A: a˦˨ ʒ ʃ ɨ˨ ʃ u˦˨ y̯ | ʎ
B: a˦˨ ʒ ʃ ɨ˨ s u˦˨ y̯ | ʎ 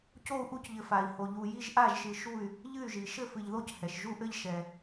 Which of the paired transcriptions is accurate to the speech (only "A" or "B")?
A